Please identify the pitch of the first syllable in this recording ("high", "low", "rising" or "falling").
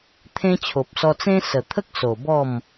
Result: high